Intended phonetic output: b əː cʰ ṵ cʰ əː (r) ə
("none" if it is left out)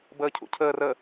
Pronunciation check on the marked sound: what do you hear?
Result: r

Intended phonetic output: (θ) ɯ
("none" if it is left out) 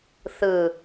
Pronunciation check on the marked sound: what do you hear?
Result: θ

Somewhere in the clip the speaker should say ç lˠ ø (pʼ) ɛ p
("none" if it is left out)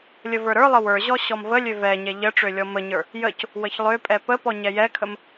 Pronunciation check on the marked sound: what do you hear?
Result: pʼ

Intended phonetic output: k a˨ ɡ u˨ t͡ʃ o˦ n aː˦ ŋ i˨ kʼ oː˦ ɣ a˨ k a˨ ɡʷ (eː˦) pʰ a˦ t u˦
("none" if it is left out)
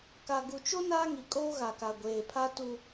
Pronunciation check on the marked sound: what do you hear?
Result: eː˨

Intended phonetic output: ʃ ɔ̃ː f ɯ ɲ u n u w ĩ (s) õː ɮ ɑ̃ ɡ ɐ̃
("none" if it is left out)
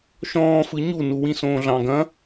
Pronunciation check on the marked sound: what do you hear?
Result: s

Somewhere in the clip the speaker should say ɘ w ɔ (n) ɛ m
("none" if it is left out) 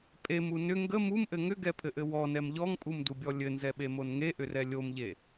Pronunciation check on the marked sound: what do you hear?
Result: n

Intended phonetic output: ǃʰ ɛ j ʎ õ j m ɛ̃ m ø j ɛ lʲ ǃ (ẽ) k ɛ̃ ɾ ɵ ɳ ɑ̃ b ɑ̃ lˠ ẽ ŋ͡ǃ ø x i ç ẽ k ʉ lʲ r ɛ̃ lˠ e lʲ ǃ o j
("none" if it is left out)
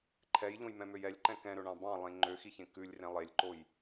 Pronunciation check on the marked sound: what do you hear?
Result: ɛ̃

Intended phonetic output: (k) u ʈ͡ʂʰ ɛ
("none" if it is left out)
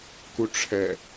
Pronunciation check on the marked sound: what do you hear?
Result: k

